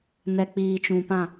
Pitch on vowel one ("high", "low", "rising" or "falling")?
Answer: low